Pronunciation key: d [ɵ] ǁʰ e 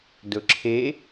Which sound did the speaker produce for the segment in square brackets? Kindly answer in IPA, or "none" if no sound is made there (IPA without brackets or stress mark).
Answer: ɵ